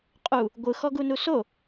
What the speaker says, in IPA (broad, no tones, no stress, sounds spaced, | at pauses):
qʼ u | ɡʷ ɯ x ɔ ɡ u n u s o